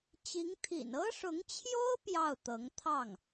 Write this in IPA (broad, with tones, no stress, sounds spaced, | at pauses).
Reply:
t͡ɕ i˧˥ ŋ t̪ʰ ḭ˨˩ n ɤ˥ ʂ ʊ˧˥ ŋ t͡ɕʰ j o˥ ʊ̯ p j ɑ˥˩ ʊ̯ t̪ ɤ˧˥ ŋ t̪ʰ ɑ˥˩ ŋ